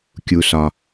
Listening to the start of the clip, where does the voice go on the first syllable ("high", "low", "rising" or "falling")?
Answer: low